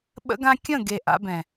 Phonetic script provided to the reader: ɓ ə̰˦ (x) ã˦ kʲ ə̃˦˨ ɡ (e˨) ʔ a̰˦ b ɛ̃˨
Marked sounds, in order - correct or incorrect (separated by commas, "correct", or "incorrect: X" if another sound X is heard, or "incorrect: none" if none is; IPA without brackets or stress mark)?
incorrect: ɡ, correct